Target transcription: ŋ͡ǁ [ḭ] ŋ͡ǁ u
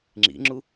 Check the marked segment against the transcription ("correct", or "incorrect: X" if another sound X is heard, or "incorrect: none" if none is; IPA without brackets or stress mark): correct